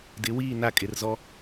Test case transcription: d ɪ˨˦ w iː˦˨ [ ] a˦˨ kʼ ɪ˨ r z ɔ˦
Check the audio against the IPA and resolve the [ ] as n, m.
n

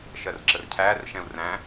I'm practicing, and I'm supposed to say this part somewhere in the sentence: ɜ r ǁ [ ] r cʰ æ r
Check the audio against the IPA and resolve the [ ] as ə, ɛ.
ə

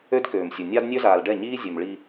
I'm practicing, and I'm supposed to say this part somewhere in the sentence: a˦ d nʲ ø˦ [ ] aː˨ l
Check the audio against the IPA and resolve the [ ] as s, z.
z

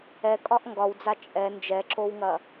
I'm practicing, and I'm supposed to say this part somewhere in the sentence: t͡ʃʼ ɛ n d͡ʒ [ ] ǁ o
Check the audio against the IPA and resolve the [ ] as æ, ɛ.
ɛ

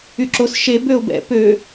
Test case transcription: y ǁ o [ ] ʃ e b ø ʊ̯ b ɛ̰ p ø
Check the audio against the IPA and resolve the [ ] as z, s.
s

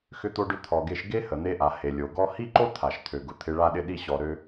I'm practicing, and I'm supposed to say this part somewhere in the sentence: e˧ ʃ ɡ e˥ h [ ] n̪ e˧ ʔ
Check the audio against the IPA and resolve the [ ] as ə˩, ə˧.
ə˩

